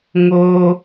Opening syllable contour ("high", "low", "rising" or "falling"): high